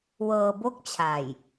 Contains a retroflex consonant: no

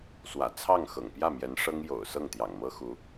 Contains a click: no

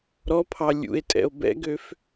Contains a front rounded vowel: yes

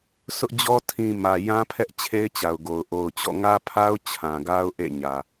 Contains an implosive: no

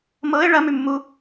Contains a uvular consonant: no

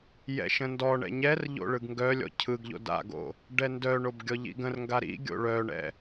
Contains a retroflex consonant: yes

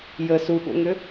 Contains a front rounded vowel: yes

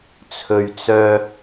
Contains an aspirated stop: yes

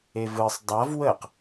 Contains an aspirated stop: no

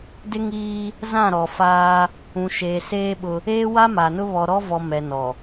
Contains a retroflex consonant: no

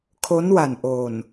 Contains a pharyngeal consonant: no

